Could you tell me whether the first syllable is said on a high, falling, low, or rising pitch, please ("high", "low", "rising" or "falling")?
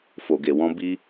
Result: low